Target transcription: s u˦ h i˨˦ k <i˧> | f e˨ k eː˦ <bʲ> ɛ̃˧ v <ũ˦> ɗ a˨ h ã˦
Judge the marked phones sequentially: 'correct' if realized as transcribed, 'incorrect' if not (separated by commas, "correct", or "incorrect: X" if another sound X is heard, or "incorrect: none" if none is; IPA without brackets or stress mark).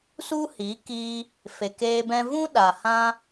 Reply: correct, incorrect: b, correct